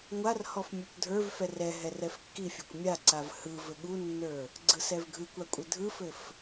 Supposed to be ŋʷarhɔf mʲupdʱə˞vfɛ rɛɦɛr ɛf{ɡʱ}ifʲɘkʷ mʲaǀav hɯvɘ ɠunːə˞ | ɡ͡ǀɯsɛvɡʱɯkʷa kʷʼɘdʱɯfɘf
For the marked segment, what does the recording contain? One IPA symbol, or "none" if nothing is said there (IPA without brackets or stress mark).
kː